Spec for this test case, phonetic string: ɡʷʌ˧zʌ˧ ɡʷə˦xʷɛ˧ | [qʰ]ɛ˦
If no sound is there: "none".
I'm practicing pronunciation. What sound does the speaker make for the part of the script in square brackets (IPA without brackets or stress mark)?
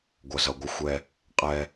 qʼ